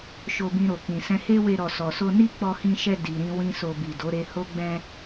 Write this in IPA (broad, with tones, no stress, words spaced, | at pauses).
ʃo˧bĩ˧ɾo˨ kĩ˨sɛ̃˧he˦we˧ ɾɔ˨sɔ˨so˧ ni˦k͡pɔ˧hĩ˧ʃɛ˧ di˨ɾĩ˧ wĩ˦so˧ bi˨do˨˦ɾe˧ ho˦ ɡ͡bɛ̃˦